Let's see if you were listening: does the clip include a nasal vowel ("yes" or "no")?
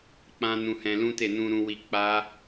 yes